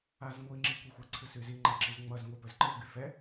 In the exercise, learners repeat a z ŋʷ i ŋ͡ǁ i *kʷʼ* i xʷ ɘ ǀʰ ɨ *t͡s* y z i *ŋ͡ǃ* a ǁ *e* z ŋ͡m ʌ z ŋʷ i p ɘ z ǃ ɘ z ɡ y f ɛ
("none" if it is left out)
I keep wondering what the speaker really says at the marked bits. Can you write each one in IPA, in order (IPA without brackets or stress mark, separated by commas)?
kʷ, s, ŋ͡ǃ, i